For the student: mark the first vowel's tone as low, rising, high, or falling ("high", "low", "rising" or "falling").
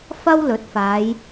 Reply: high